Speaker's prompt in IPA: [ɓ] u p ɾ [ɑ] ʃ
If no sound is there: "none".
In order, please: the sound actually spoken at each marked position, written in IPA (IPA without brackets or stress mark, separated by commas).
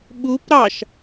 ɓ, ɑ